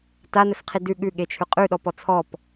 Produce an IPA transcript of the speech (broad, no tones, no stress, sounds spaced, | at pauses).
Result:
t a n ə s qʰ i d ʉ ɠ ʉ ɠ e t͡ʃʰ ʉ qʼ ʉ ɗ ɔ p ɔ t͡sʰ ɔ p